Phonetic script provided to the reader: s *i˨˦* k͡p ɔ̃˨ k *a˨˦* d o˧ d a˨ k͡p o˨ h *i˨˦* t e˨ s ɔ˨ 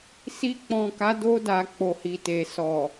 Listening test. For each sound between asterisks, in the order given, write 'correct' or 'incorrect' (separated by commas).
incorrect, correct, incorrect